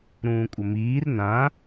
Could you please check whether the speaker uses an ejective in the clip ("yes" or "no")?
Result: yes